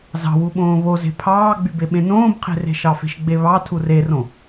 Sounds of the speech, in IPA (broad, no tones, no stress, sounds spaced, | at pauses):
z ɑ̤ w u ɓ õː β o z e̤ pʰ ɑː ɡ͡b y b e ɓ ẽ n õː b qʰ e̤ r e̤ ʃ ɑ f e̤ ʃ ɡ͡b e β ɑ tʰ u r e r õ